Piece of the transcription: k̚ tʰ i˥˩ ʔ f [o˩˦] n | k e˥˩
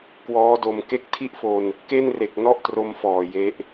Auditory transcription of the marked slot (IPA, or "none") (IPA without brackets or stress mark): o˧